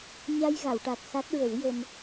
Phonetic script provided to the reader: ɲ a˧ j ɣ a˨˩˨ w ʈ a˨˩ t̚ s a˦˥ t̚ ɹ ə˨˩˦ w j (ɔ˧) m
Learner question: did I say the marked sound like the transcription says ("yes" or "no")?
no